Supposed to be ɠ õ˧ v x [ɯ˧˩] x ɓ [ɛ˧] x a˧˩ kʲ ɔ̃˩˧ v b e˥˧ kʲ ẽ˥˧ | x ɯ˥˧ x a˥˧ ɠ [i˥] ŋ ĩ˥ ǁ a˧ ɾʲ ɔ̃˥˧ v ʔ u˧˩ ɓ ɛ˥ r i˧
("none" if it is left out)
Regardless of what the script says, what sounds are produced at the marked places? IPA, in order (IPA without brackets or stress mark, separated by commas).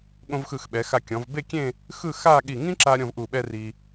ɯ˧˩, ɛ˩˧, i˧˩